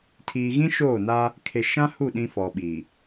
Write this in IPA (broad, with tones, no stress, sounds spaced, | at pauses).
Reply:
tʰ iː˨ ɣ ĩ˦ ʃ oː˦˨ n a˦ | kʰ e˨ ʃ ã˦ h u˦˨ ɗ ĩ˦ f ɔ˨ ɓ i˨